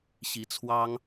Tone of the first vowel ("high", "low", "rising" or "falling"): rising